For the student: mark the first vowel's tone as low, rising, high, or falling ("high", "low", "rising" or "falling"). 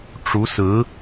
rising